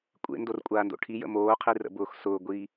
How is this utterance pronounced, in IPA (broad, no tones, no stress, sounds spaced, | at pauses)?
kʷʼ ḛ n d o r kʷʼ aː n d o̰ ʈʰ i j ə̰ m oː qʰ i r ə̰ b ʊː x s ʊː ɡʷ iː